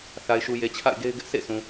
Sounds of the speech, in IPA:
θ a˨ ɪ̯ ʃ u˨ j e˨ t͡ɕʰ a̰˦˨ ɪ̯ ɡ e˦ ɪ̯ ɡ ɪ˦ ʔ s ḛ˦˨ s ũ˨

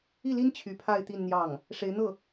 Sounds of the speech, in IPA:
i˥˩ l i˥ n t͡ɕʰ y˧˥ pʰ a˥˧ ɪ̯ t̪ i˥˧ n n̪ j ɑ˥˩ ŋ | ʂ e˧˥ ɪ̯ n̪ ɤ˥˩

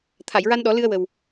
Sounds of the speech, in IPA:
t̪ʰ a˨˩˨ j ɹ a˧ n ɗ ɔ˨˩˦ l ɨ˧ ə̯ w ə˨˩ w

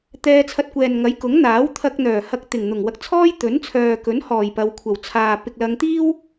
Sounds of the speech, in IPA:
t̪ ɛː˧ t͡sʰ ɐ˧ t̚ kʷ ɛː˨ n ŋ ɐ˨˥ j k ʊ˨˥ ŋ n̪ aː˨˥ w t̪ʰ ɐ˧ k̚ n̪ œː˨˩ h ɐ˧ k̚ t̪ ɪ˨˩ ŋ n̪ ʊ˨˩ ŋ w ɐ˧ k̚ t͡sʰ ɔː˥ j t̪ ɵ˨˥ n t͡sʰ œː˨ k ɵ˨˥ n h ɔː˨˩ j p ɐ˨˧ w kʷʰ ɐ˨˩ w t͡sʰ aː˨ p ɪ˨ k̚ l ɐ˨˧ ŋ t̪ iː˥ w

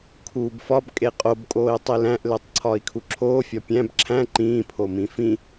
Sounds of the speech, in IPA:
kʰ uː b f ɒ b kʼ e qʼ o b kʼ oː i̯ tˤ i l æ̃ ʔ l e tˤ ǀʰ ɒː i̯ kʰ u ǁʰ oː fʲ ɒ pʲ æ̃ b ǁʰ æ̃ ǃ ĩː pʰ o m ĩ f ĩ

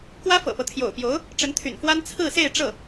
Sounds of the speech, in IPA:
k w ä˥ f ɤ̰˨˩ p ɤ˦ t̪ʰ j o̰˨˩ ʊ̯ p j o˧˥ ʊ̯ | ʈ͡ʂ ə˧˥ n t̪ʰ y̰˨˩ n f w a˥ n t͡sʰ ɹ̩˥˧ s e˥˧ ɪ̯ ʈ͡ʂ ɤ˥˩

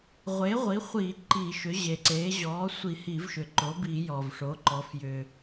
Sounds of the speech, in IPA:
ʁʷ e˩˥ ʁʷ i˩˥ χʷ iː˧˩˧ ǃ i˧˩˧ ʃ ʏ˩˥ ʑ e˩ ǀ eː˩˥ ʑ ɔː˩˥ sʷ i˧˩˧ h i˧˩˧ v ʃ ʏ˩ ǃ o˩˥ b i˧˩˧ j ɔː˩ v ʂ o˩˥ ǃ ɔ˩˥ f j ʏː˩

